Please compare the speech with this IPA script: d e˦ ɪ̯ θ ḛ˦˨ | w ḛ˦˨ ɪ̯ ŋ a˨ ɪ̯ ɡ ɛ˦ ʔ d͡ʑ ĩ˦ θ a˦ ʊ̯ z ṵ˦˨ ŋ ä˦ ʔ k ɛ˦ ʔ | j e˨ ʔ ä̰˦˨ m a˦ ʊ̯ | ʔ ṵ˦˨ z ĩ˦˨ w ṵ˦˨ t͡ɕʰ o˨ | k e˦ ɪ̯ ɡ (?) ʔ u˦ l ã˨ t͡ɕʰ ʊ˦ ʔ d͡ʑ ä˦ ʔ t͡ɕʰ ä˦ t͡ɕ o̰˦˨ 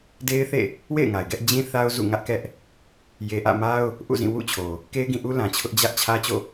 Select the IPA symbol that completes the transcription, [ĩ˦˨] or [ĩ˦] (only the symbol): ĩ˦˨